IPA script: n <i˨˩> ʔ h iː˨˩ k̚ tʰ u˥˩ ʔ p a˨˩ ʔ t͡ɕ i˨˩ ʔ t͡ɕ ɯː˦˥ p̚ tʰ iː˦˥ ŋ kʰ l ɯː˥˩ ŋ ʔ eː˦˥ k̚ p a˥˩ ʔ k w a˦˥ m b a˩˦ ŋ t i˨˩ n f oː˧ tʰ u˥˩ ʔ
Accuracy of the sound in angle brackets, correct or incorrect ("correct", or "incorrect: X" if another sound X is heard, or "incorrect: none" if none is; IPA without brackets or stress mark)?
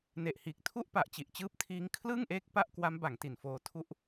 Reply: incorrect: e˨˩